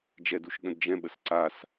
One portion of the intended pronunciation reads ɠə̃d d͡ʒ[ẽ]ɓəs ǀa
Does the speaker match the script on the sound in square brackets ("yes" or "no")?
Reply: no